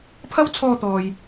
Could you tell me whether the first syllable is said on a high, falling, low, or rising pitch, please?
high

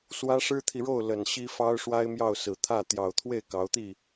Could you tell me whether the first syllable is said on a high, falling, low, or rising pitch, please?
high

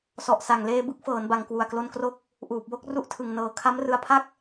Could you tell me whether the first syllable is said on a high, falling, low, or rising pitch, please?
low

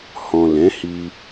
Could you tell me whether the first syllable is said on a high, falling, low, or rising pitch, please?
low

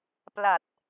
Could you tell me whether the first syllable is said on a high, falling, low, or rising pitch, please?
low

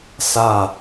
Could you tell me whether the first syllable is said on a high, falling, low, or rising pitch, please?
falling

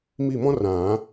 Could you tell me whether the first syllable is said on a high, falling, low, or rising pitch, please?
falling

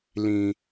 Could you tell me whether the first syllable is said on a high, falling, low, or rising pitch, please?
low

